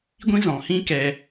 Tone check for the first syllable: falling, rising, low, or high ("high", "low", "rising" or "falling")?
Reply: high